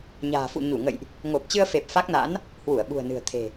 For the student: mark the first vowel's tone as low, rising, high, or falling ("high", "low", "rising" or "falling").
low